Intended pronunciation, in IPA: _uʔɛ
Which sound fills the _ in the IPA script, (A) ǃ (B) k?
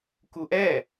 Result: B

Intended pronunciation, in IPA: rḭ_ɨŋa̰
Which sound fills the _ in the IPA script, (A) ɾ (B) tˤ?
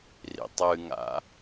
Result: B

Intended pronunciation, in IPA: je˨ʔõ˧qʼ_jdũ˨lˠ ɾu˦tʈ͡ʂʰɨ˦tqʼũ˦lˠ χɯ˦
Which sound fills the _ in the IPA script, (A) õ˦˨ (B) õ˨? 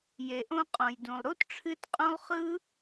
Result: B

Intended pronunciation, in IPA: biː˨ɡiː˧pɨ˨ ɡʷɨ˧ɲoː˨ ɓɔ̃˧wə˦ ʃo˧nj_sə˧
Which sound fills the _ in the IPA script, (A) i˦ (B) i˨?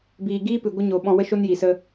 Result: B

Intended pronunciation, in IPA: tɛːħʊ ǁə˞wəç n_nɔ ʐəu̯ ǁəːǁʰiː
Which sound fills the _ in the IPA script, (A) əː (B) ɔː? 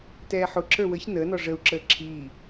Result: A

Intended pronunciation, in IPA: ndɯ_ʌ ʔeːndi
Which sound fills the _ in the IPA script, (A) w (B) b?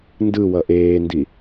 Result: A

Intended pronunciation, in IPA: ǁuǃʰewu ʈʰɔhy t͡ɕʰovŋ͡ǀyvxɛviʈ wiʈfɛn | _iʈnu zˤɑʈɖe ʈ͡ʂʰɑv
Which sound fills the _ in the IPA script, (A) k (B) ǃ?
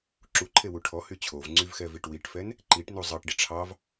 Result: B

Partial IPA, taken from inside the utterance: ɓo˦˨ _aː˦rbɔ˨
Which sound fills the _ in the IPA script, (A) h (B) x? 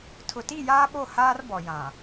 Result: A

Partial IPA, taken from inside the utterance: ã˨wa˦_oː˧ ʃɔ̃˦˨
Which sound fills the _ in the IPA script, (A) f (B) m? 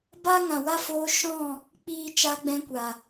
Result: A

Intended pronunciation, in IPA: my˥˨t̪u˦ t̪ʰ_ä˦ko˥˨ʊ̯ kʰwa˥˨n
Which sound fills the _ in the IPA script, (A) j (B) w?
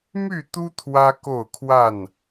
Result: B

